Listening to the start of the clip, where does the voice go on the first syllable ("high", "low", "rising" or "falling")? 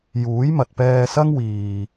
rising